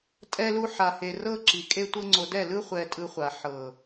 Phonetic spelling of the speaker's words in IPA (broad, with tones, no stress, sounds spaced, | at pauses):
tʼ ɛ˦ l u˦ ħ a˧ h e˧ r ɤ˦ ǁ i˨ kʼ e˦ tʷ ɤ˦ ŋ͡ǀ o˧ d ɛ˦˨ l ɯ˦ χʷ ɛ˧ tʼ ɯ˧ χʷ a˨ ħ ɤ˨